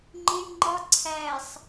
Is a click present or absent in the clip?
present